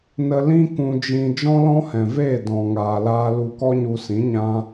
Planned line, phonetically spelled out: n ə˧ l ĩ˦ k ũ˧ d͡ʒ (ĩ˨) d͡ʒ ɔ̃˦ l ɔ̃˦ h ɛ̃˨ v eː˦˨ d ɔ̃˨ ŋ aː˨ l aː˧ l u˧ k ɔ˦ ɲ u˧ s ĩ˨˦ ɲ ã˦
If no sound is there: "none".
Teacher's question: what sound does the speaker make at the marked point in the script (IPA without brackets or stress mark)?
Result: ĩ˧